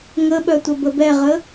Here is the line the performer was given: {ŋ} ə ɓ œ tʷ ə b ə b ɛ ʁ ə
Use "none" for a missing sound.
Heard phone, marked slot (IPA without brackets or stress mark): ŋ